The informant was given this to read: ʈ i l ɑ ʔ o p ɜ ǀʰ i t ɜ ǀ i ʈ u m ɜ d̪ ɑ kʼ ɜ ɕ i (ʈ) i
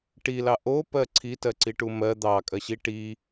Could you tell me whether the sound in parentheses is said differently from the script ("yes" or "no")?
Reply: no